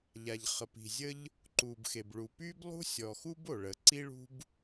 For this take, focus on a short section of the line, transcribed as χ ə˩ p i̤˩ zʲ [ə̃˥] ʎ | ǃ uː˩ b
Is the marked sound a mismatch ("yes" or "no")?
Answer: yes